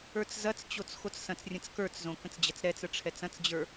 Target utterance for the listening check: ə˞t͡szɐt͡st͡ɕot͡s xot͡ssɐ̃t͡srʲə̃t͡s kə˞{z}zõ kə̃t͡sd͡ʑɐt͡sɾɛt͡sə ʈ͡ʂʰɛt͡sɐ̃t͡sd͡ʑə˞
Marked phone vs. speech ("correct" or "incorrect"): incorrect